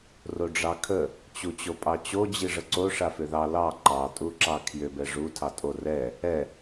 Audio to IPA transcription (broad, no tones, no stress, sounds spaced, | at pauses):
r o ɖ͡ʐ ɑ kʰ ə | t͡ɕ u t͡ɕ o pʼ ɑ t͡ɕ o d͡ʑ i ʐ ə ǀ o ʂ a f ʏ ð ɑ l ɑ ǃ ɑ tʼ u ǁ ɑ kʰ j ʏ b ɛ ʐ u tʰ ɑ tʼ o r ɛ | ɛ